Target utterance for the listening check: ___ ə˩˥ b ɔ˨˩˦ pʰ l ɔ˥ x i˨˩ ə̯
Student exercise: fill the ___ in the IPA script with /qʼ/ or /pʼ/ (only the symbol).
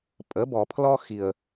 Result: pʼ